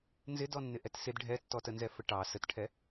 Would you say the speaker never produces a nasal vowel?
yes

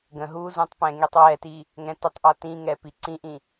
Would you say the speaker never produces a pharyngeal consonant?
yes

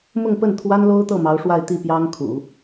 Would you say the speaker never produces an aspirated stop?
no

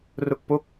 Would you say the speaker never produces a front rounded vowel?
yes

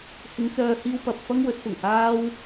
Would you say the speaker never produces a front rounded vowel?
no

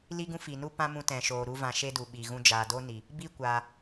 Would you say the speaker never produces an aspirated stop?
yes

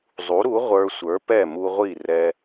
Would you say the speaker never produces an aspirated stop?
yes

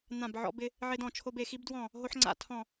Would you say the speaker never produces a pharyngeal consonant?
no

